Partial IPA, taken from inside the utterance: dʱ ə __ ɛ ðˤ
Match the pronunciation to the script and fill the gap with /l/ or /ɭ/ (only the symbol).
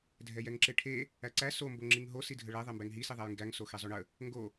ɭ